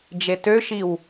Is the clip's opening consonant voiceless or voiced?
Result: voiced